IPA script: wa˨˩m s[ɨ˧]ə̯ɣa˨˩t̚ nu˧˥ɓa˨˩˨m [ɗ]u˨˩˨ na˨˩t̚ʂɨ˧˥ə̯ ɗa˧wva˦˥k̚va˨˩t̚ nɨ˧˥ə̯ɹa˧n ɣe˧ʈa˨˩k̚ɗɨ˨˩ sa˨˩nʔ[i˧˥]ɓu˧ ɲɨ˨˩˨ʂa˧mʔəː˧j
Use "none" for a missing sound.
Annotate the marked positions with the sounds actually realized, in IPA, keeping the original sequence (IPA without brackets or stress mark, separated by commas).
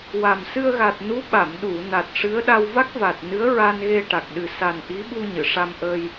ɨ˧, ɗ, i˧˥